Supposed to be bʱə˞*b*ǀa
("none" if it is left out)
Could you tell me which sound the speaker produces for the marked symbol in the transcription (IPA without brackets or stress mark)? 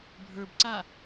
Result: b